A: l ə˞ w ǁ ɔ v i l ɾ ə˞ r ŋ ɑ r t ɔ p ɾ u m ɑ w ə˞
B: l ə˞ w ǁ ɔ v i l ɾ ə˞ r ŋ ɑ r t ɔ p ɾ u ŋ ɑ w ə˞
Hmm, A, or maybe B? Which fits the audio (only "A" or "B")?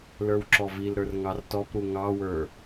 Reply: B